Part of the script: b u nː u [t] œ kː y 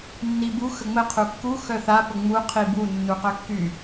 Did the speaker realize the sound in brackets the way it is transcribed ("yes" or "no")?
no